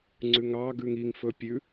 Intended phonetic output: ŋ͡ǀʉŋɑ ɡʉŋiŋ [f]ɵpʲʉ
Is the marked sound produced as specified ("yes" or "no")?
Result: yes